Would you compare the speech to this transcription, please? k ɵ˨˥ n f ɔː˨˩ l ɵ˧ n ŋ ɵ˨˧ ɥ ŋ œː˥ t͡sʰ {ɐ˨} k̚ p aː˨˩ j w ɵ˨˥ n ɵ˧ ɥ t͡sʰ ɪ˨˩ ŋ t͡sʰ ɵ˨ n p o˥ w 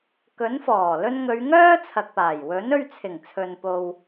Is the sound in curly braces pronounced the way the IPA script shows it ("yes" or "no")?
yes